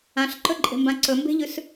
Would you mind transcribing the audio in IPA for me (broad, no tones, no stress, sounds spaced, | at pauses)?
ã ɬ ǃ ɵ ǃʼ e̤ m b ã ǀ ɵ m b e̤ ʎ ʉ s